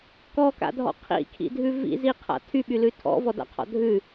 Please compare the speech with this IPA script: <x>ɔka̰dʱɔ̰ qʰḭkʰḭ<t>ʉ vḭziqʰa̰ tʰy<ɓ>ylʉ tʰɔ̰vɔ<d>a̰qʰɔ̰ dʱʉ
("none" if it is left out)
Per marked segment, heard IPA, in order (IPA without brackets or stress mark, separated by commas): k, dʱ, ɓ, d